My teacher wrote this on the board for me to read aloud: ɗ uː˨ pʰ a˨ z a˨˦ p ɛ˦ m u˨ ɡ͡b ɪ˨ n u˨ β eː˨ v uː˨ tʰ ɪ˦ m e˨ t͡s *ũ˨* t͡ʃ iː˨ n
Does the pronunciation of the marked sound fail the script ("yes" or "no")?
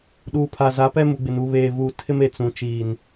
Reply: no